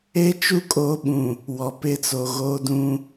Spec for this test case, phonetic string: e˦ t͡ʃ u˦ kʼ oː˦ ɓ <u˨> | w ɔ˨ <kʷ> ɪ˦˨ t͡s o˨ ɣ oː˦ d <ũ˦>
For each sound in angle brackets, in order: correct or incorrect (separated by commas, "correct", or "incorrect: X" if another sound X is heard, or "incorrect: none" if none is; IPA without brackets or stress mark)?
incorrect: ũ˨, incorrect: p, correct